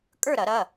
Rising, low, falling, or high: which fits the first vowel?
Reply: falling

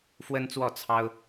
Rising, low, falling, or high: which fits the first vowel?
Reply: high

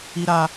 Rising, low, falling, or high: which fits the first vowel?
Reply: high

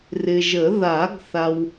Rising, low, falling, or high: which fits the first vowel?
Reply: low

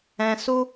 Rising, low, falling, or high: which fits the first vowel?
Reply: high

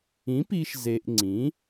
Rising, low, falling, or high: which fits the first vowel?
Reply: rising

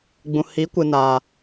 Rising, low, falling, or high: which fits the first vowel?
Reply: low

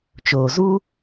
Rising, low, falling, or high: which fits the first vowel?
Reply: low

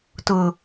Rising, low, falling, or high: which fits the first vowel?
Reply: low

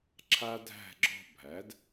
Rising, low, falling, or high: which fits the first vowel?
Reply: high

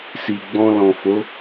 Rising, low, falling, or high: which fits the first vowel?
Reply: low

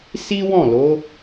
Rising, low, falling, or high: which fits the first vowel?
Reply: high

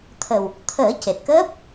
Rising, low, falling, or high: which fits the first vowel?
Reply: low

